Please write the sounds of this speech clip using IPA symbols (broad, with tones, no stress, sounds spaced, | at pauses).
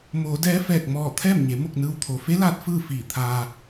m oː˩˧ d ɛː˧˥ f ɛː˧˩ k̚ m ɔː˧˩ t̪ʰ ɛː˥˨ m ɲ e˩˧ m o˥˨ k̚ n ɯː˧ w t̪ʰ o˩ f e˧˥ l aː˧ t̚ f ɯː˥˨ f iː˧˩ t̪ʰ aː˧